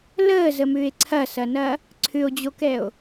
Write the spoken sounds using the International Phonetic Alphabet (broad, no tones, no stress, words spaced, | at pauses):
ləːzəmʏːe̯ ǀʰɐsɐnɐ | ǀʰʏo̯d͡ʑokɛo̯